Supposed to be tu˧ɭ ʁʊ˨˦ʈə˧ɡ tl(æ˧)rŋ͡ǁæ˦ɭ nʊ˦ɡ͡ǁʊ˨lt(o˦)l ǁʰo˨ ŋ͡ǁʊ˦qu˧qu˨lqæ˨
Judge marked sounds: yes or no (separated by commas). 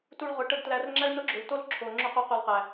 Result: yes, yes